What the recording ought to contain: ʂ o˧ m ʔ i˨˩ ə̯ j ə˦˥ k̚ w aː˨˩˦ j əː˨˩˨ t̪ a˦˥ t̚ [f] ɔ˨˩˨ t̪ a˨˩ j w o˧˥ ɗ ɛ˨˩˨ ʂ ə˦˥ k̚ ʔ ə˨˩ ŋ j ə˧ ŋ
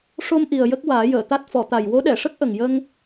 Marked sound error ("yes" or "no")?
no